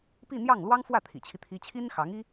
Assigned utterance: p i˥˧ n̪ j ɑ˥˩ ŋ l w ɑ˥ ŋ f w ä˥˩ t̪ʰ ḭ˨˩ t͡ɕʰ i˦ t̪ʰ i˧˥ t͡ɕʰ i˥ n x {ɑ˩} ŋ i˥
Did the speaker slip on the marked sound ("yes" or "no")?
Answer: yes